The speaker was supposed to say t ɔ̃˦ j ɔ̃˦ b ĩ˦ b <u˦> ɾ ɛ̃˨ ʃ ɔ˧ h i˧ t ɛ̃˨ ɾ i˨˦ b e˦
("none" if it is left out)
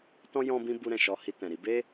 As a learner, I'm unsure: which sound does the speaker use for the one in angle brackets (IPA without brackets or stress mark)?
u˧